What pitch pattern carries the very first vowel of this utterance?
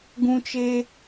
high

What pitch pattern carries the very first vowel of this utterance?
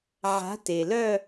rising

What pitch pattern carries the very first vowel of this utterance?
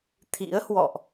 rising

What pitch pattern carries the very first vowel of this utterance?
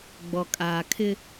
low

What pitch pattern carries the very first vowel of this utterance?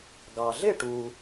low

